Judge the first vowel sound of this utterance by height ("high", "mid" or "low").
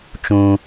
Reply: high